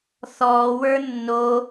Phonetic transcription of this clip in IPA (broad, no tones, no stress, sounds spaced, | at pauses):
θ ɔː w ə˞ nː o